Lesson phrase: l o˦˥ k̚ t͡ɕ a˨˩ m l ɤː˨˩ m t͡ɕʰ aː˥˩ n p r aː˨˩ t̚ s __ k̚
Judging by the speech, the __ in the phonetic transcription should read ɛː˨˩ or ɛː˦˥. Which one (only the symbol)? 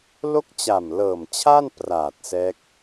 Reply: ɛː˦˥